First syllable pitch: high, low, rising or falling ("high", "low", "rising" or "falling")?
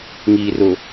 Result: low